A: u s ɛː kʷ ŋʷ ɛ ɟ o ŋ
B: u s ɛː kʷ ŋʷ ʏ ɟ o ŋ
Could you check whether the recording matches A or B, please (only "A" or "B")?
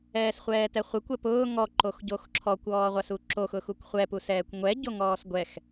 A